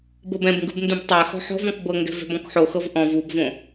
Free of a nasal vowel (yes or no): no